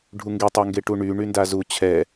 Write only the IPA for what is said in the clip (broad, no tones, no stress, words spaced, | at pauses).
ɖʱuŋɡetˤæŋɡe ʈuɳy ɳyndazu t͡ɕʰɛ